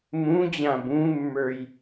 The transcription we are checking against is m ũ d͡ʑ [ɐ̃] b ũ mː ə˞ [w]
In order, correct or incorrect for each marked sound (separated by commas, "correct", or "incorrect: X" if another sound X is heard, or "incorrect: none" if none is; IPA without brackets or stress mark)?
incorrect: ã, incorrect: j